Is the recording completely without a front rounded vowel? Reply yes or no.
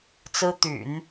no